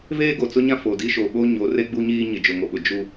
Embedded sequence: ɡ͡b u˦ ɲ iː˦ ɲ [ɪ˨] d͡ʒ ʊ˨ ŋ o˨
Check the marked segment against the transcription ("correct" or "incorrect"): correct